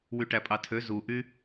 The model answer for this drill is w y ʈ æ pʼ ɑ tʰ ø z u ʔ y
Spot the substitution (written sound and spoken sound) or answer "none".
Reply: none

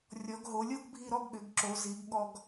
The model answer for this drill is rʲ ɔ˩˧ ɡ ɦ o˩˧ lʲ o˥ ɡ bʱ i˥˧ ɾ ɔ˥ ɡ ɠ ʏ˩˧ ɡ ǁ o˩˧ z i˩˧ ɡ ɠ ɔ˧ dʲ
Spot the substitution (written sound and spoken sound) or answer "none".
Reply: dʲ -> ɡ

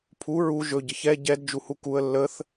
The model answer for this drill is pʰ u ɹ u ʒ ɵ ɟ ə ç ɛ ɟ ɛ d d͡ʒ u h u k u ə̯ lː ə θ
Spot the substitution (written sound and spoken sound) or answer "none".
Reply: none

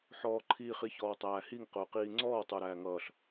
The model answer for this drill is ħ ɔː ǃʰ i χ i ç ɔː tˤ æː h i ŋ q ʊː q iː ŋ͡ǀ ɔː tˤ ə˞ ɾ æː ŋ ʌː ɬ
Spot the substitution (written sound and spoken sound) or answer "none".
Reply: none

